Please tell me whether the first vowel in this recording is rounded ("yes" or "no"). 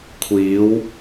no